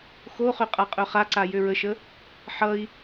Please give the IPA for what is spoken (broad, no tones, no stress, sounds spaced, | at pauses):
x o χ ø qʼ a qʼ œ χ a ǀ a j ø ɹ ə ʃ ə | ħ ʌ i̯